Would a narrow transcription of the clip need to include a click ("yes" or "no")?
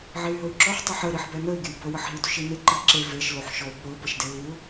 yes